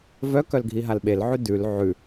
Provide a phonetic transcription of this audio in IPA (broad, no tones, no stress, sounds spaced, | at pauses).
v œ k œ l ɡʱ i ɦ a l ɓ e l ʕ ʉ d ʉ l ʕ ʉ